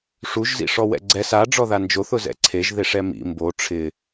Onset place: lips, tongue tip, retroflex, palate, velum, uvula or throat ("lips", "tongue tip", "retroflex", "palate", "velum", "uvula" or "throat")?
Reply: retroflex